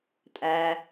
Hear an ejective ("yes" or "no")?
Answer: yes